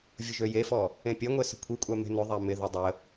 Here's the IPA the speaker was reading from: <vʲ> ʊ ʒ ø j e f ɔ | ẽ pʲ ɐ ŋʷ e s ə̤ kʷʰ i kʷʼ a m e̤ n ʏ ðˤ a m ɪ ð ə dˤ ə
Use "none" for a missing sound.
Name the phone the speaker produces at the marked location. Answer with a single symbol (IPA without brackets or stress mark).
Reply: vʲ